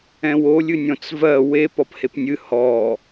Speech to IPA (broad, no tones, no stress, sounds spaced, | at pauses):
ɛ̃ w o lʲ ɨ nʲ ɔ̃ t͡s v ɜ w e p ɔ p h e p nʲ ɨ h ɔ